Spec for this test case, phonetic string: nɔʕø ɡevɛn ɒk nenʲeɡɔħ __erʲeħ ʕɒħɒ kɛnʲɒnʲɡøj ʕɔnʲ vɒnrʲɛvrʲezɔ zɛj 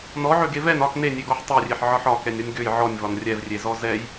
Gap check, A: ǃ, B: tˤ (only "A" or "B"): B